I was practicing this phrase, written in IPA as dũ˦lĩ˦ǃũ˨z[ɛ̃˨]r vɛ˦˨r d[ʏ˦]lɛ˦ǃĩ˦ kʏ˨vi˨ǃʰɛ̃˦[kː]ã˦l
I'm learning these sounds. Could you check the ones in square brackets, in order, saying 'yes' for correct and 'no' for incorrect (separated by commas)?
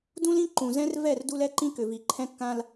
no, no, yes